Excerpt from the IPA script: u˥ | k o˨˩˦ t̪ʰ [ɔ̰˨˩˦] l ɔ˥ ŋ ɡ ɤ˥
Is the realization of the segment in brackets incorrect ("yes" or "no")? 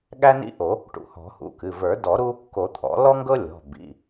no